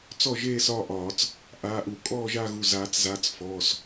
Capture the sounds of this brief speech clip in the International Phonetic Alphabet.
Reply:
t͡sɔ˥˧ʒeː˥˧s ɒː˥˧ʔɒː˨˩˦t͡s | ʔaː˩˧˩ʔu˨˩˦kʼɔː˥˧ ʒaː˥˧ɣu˩˧˩ zaː˨˩˦t͡szaː˩˧˩t͡s fɔː˩˧˩s

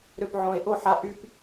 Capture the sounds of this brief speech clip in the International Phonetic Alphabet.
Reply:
ɾø˧˩pʕõ˨˩˦e̯ʔo˥˧ħa˧ ʔy˥˧p

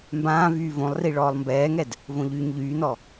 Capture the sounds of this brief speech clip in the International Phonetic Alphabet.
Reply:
mbãːvyː võlˠri ɭɔːlˠmbɛːŋɛd | võʎyːɲʎyːnɔ

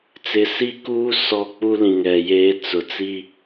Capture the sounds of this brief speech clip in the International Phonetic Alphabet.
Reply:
t͡sɪ˨si˦˨kuː˦ sɔ˦˨k͡pu˦lĩ˨ŋɛ˨ jeː˦ t͡sʊ˨ t͡si˦

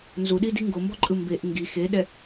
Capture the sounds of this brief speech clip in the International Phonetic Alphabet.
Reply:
nzuɗidi ŋɡombɔǃʼɯ mbeʔ ŋɡi xeɗɛ

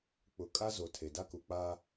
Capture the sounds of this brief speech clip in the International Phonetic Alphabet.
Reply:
k͡pʊ˨ kʼa˦zo˨ tʰe˨da˦ku˨k͡paː˦

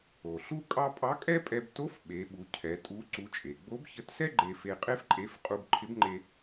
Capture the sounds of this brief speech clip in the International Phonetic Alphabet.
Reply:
o˩ɬu˥kʼɑ˥ pʼɑ˧˥kʼɛ˥pʼɛ˧b to˧˥f ɓe˩˧ɓu˩˧cʰɛ˩˧ tʼu˧˥ ǀu˧˥t͡ʃʼe˩ ɡ͡bo˧˥bçə˧˥tsɛ˥ ɡ͡ǃe˧fe˧qʼe˥f ǃʼe˧˥f qʼu˧bǃʰɪ˧˥bŋ͡ǃe˧

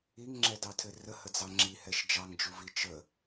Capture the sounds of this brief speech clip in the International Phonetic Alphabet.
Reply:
iŋŋ͡ǁɛdɑtʰɘ rəhəd͡zɑ ŋ͡ǁihɛʃ d͡ʒɑŋd͡ʒuvi t͡ʃə

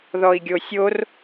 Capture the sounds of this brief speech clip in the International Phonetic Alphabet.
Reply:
ðɔi̯ɡʲosʲor

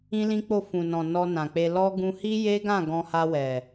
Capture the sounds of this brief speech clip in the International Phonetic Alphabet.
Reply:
ĩ˦lĩ˦k͡po˦˨ fũ˨nɔ̃˨ nɔ˧nã˨k͡pe˧ lɔ˦ ɡũ˧hi˦je˦ɡã˦˨ ɡɔ̃˧ha˧wɛ˨

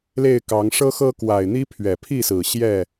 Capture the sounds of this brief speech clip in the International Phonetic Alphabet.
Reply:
le˥˨ɪ̯kɑ˨˦ŋ ʂɤ˦xɤ˦kwa˨˩ɪ̯n̪i˦ pʰɥɛ˨˩pʰi˥˨sɹ̩˨˩ ɕjɛ˥˨

